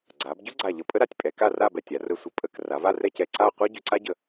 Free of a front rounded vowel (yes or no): no